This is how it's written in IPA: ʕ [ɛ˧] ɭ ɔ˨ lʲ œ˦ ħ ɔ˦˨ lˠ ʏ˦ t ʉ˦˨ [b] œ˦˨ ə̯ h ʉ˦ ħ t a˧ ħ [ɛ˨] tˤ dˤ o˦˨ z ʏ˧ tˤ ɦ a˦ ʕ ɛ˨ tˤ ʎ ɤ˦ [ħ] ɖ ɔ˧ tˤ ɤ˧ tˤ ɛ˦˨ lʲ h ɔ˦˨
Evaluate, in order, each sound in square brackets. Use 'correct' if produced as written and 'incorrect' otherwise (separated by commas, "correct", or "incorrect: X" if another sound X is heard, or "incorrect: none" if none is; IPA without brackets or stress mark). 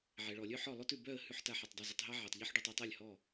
incorrect: ɛ˨, correct, incorrect: e˨, correct